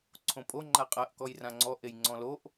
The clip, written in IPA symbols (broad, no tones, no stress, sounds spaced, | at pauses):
ǀʰ õ pʼ o ŋ͡ǃ a qʼ ɜ ʔ k ɔ j r ã ŋ͡ǀ ɔ ʔ e j ŋ͡ǀ ɔ̃ l o ʔ